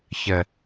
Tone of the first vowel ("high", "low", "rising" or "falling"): low